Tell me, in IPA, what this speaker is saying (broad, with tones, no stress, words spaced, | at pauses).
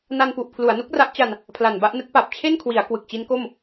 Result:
na˧npu˨˩ʔ pʰlu˩˦a̯nu˦˥k̚ra˦˥ʔt͡ɕa˧n | pʰla˨˩nba˥˩ʔnɯ˦˥k̚ pa˨˩p̚t͡ɕʰe˥˩nkʰwi˩˦a̯ kwɯ˨˩k̚t͡ɕi˦˥nko˥˩m